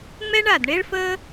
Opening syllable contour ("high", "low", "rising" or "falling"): high